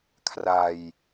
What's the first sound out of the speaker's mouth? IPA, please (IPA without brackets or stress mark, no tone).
kʰ